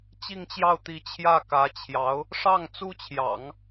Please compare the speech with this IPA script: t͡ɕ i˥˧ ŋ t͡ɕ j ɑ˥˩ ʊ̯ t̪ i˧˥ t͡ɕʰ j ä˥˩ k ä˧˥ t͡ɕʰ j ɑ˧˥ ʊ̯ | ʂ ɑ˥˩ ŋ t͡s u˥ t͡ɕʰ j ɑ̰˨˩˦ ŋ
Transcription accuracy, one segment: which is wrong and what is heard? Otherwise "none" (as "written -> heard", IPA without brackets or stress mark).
none